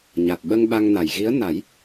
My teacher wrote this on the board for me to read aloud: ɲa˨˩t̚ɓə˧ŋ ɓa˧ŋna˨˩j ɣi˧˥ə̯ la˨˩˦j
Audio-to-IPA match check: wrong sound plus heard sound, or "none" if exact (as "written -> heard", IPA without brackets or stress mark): l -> n